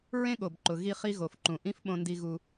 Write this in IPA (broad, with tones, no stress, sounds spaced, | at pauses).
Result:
ɹ ẽ˥ ɠ o˩ b ǃ ʊ˩ ɣ i˧ χ i˧ ɣ o˩ f ǃ ũ˩ ʔ ĩ˥ f ɓ õ˧ n d i˧ ɣ u˧